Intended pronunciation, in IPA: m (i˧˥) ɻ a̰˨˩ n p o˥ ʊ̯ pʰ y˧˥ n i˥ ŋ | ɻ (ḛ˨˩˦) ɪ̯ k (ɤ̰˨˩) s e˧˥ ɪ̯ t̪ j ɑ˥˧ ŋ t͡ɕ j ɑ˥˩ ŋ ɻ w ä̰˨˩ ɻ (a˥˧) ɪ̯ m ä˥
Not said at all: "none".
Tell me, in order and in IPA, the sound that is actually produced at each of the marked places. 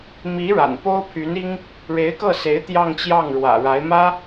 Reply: i˧˥, e˧˥, ɤ˥˩, a˧˥

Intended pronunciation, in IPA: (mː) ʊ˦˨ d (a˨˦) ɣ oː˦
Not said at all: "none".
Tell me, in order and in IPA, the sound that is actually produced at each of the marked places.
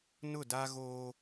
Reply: n, a˦

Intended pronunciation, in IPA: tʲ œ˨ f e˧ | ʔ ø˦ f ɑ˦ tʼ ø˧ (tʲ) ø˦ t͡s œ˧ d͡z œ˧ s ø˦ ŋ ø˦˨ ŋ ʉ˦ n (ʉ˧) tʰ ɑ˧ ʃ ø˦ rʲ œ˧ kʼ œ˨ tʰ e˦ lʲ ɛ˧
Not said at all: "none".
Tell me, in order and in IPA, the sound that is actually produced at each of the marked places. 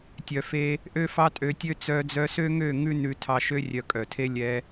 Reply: tʲ, ʉ˧

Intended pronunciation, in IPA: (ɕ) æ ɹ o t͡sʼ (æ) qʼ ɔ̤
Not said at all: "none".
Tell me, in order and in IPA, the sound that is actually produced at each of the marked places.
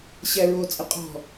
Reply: ɕ, ə

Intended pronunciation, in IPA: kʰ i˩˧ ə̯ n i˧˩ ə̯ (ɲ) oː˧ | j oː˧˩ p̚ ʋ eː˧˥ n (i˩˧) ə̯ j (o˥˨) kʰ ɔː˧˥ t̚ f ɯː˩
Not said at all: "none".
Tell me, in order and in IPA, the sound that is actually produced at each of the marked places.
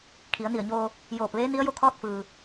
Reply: ɲ, i˧˥, o˥˨

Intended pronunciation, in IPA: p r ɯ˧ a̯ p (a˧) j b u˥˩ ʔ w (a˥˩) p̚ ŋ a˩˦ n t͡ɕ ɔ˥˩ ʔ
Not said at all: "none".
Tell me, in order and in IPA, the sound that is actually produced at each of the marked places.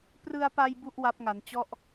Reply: a˧, a˦˥

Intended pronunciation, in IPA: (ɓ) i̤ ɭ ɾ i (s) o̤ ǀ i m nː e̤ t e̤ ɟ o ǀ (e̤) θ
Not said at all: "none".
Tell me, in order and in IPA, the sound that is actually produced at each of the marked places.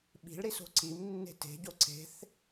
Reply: ɓ, s, e̤

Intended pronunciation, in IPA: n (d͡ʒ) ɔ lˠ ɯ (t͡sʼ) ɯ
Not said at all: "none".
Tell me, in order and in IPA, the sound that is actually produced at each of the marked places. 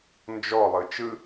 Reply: d͡ʒ, t͡ʃ

